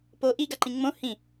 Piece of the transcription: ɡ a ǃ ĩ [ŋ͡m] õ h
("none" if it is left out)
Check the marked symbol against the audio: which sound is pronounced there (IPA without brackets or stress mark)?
ŋ͡m